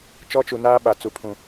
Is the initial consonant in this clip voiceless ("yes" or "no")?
yes